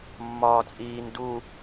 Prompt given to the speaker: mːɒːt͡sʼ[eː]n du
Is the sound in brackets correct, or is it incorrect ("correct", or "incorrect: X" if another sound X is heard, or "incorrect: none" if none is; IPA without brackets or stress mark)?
incorrect: iː